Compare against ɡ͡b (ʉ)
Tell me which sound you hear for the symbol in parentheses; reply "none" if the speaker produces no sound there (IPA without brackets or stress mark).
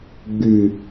ʉ